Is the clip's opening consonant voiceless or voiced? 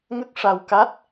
voiced